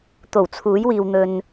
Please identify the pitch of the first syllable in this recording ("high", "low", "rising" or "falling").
low